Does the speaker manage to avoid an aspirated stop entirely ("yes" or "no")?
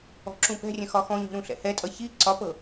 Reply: yes